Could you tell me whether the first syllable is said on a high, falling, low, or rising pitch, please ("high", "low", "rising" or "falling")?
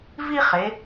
high